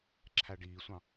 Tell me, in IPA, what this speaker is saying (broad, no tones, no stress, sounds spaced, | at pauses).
ǁʰ æ ɖ iː sʷ ɑ̃